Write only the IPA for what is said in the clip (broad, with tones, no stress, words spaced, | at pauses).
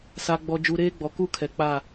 sa˨ɡ͡bɔ˨ d͡ʒu˨ɾeː˦ɡ͡bɔ˨ ku˦ kʰɛ˨k͡pa˦˨